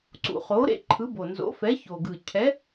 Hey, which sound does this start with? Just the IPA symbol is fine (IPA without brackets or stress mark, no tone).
ǀ